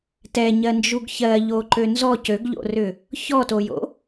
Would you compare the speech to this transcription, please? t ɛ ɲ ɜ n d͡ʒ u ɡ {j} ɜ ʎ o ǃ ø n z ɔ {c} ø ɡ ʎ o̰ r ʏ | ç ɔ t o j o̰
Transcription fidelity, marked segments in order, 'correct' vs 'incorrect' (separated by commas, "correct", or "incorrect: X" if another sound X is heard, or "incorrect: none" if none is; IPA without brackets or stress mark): incorrect: ç, correct